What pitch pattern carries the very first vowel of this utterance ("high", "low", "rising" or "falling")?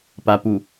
low